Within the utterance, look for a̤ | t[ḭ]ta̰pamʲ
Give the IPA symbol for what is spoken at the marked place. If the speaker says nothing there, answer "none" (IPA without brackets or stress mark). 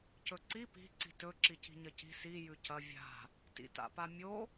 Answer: ḭ